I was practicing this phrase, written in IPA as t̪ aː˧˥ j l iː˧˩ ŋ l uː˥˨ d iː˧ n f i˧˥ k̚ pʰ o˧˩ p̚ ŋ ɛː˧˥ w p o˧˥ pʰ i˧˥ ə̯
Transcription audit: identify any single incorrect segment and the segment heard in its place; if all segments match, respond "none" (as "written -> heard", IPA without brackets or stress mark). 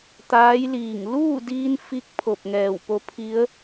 ɛː˧˥ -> ɛː˧˩